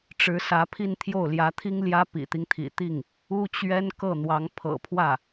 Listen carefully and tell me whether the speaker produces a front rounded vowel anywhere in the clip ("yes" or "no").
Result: no